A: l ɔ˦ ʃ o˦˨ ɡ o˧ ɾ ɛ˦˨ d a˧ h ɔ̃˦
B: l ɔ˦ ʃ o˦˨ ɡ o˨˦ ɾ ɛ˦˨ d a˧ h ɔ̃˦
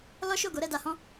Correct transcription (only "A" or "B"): B